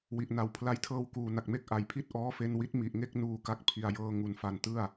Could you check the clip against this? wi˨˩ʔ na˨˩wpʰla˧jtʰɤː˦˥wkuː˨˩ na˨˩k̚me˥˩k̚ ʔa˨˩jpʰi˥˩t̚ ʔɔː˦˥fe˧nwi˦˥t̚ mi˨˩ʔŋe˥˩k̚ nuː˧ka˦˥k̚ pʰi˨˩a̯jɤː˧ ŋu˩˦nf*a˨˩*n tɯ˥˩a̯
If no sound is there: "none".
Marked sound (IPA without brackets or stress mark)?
a˨˩